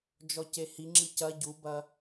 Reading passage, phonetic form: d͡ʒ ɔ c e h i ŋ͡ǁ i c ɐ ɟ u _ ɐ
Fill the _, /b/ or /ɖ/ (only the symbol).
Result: b